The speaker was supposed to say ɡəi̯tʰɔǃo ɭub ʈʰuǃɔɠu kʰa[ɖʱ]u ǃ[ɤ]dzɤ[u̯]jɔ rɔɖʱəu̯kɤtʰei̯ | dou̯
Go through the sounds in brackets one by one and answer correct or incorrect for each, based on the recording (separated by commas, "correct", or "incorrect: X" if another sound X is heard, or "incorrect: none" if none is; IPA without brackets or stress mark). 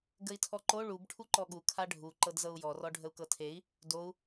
correct, correct, correct